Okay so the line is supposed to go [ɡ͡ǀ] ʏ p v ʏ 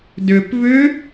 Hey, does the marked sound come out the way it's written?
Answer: no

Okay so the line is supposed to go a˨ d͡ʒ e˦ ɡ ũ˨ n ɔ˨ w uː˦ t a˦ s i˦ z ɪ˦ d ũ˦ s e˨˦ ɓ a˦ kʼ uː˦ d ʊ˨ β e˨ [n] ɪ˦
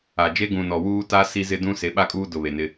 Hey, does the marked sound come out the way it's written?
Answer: yes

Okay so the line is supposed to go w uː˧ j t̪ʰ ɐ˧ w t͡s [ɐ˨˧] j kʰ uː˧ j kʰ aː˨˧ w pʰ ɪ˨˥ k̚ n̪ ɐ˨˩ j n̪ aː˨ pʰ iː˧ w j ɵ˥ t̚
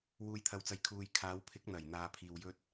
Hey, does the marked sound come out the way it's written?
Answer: no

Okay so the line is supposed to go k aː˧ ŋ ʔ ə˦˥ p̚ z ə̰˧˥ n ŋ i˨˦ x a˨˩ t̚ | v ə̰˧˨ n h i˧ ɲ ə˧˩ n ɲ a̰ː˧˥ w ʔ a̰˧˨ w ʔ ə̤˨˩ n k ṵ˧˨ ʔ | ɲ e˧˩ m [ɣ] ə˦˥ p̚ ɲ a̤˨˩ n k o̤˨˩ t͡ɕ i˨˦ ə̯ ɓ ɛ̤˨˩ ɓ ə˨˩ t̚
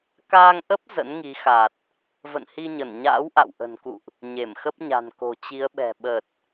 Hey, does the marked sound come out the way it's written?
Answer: no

